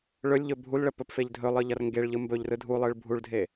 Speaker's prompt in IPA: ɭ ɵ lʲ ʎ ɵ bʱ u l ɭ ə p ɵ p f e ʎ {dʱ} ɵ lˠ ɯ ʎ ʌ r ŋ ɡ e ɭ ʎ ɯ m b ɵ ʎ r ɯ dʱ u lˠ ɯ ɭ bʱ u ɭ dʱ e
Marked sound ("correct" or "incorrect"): correct